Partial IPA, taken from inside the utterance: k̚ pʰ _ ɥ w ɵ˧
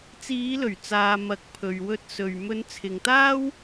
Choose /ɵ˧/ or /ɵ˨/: ɵ˨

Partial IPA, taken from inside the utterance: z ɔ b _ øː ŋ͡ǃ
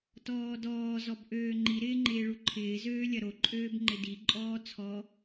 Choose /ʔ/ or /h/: ʔ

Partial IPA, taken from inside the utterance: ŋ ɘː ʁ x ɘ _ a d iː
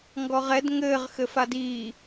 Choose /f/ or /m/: f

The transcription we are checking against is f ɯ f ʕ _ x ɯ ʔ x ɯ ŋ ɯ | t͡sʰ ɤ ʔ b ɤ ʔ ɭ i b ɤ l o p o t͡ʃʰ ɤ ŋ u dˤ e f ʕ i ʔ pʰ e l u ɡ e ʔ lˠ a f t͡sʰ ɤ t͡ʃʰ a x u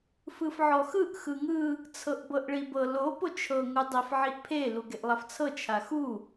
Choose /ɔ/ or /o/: ɔ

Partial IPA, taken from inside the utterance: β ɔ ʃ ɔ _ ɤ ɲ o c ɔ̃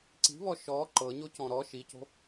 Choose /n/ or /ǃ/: ǃ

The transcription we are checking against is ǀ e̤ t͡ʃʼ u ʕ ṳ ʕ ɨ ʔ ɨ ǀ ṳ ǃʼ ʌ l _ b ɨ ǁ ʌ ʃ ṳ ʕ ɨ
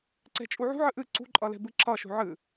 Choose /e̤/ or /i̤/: e̤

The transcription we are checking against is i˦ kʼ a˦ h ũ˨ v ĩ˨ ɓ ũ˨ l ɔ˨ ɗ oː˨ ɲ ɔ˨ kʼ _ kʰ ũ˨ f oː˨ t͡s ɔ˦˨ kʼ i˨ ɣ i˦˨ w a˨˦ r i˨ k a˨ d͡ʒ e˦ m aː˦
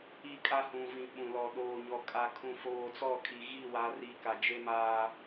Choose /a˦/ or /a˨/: a˨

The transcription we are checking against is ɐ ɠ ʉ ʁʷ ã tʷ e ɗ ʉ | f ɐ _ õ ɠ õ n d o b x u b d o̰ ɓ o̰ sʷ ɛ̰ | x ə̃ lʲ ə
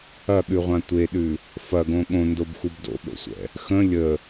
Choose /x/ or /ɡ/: ɡ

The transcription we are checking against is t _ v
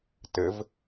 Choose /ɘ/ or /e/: ɘ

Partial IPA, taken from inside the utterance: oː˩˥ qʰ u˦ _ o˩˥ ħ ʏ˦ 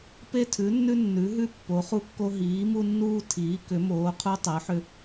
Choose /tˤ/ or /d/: tˤ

